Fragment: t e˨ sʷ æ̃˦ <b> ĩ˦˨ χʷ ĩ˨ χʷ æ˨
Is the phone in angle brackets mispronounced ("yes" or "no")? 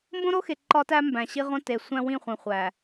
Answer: yes